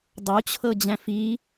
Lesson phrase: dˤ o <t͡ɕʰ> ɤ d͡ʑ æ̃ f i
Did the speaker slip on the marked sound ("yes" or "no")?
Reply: no